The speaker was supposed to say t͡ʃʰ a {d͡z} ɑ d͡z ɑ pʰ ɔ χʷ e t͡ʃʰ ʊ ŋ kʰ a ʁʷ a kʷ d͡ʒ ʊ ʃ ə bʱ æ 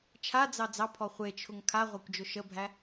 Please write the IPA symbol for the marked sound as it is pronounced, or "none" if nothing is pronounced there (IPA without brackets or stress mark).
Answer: d͡z